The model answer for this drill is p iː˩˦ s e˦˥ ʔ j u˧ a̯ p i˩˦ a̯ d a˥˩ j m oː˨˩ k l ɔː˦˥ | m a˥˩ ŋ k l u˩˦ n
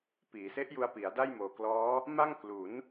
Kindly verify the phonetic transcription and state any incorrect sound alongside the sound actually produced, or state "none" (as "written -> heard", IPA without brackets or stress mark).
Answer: none